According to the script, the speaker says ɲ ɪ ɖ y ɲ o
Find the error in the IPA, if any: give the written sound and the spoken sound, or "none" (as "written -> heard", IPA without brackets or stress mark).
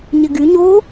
ɖ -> ɡ